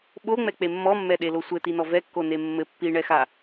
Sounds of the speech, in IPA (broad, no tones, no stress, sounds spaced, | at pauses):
ɓ o ŋ͡m ɛ k͡p e mː ɔ mː ɛ ɗ e l o sʷ ɘ t i n ɔ v ɛ kː o n e mː ɘ pː i ɳ ɛ x a